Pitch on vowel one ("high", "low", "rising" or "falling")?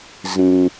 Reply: low